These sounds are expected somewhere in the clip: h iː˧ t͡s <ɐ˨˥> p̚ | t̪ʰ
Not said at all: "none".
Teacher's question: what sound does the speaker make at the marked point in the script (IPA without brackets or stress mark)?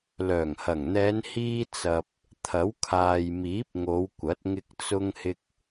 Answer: ɐ˨